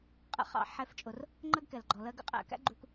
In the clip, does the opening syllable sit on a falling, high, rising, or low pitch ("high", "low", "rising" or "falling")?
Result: low